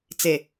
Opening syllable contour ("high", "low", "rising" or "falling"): low